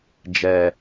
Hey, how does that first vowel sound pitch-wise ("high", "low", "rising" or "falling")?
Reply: low